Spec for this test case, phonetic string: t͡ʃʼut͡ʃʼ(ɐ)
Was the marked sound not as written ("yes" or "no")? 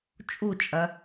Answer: no